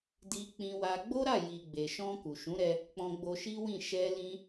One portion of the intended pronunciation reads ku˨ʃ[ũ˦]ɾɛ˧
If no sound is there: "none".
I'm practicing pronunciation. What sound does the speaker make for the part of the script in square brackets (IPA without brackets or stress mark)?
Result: ũ˨˦